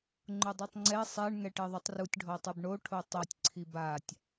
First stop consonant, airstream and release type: click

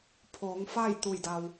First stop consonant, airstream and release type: aspirated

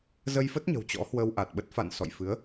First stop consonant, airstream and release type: plain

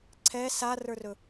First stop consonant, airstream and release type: click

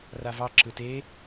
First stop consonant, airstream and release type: click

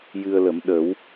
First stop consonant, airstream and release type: implosive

